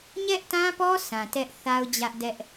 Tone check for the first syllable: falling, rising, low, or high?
high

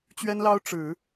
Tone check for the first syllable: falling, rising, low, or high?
high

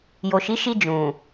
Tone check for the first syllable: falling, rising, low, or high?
low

